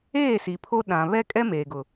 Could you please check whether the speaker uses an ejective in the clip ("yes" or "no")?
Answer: yes